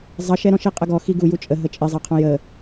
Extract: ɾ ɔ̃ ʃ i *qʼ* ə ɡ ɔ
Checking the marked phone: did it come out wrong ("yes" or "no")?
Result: no